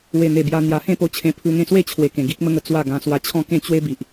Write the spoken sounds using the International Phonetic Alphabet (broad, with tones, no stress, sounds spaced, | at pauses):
w e˨˩ n̪ e˨˩ b j a˧ n̪ j a˧ h ẽ˥˧ p o˧ t͡ɕʰ ẽ˧ pʰ u˧ ŋ ẽ˥˧ s w e˥˧ t͡ɕʰ w e˨˩ k ẽ˨˩ ɡ i˦ k̚ m ə˦ ŋ ə˧ t͡s w a˥˧ ɡ ã˧ s w a˧ t͡ɕʰ ɔ̃˥˧ k ẽ˥˧ t͡ɕ w e˦ b i˨ ʔ